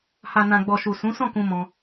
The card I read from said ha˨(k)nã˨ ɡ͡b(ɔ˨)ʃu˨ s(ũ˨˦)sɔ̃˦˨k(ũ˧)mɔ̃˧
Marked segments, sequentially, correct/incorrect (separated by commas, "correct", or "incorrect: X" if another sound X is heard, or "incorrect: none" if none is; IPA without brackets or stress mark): incorrect: none, correct, correct, correct